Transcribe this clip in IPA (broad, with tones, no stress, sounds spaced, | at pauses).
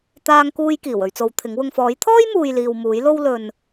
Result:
t̪ aː˧ ŋ k uː˧ j k iː˨˩ w ɵ˧ ɥ t͡s o˨˧ w t̪ʰ ɪ˨˥ ŋ w ʊ˨ ŋ f ɔː˨˥ j t̪ʰ ɔː˥ j m uː˨ j l iː˨ w m uː˨˥ j l o˥ w l ɵ˧ n